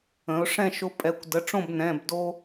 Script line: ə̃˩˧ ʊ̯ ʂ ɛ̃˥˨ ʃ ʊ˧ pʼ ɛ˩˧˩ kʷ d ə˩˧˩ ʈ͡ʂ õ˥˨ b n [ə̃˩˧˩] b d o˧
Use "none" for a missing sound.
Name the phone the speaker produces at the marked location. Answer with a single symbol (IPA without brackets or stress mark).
ɛ̃˩˧˩